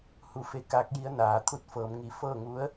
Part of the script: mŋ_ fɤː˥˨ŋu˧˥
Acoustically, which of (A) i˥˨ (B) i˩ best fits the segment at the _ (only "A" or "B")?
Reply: B